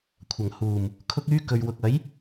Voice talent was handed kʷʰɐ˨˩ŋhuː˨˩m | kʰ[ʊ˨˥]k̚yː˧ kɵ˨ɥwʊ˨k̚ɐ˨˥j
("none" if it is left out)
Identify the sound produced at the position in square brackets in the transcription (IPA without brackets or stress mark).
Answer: ʊ˧